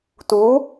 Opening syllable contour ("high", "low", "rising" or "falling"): rising